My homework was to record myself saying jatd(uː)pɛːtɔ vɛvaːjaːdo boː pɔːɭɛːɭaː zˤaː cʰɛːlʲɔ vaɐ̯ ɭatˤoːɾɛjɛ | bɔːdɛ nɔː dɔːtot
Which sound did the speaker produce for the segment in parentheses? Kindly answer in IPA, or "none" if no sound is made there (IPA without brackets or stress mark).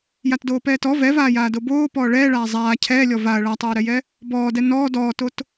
oː